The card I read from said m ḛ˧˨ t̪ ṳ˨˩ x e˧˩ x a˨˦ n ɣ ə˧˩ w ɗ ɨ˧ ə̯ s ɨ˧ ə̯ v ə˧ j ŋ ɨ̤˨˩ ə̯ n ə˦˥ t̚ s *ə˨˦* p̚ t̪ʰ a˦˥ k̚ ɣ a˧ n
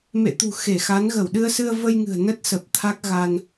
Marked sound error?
yes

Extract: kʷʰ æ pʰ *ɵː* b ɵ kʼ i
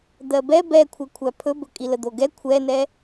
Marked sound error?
yes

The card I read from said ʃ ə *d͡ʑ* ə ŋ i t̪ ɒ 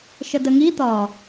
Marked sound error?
yes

